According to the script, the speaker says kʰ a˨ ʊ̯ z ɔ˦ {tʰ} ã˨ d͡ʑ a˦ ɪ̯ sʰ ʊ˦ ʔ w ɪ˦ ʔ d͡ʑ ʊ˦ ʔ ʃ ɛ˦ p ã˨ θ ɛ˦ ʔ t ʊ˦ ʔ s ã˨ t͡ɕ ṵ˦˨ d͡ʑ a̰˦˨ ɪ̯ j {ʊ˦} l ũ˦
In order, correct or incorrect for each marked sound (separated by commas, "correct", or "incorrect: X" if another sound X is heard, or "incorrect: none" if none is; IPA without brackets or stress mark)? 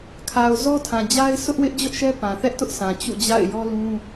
correct, incorrect: ɔ˦